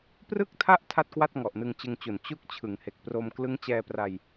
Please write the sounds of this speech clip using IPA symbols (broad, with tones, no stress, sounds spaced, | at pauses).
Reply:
p r ɯ˥˩ k̚ tʰ a˥˩ ʔ tʰ a˥˩ t̚ k w a˥˩ t̚ ŋ ɔ˨˩ ʔ n ɯ˧ ŋ t͡ɕ ɯ˧ ŋ t͡ɕ u˨˩ n t͡ɕ u˥˩ k̚ t͡ɕʰ ɯ˩˦ ŋ h e˨˩ k̚ p r o˧ m k l ɯ˦˥ ŋ t͡ɕ ɛː˧ p r a˧ j